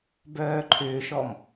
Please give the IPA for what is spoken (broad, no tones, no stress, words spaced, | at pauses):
bœːǃʰʏːʃɔm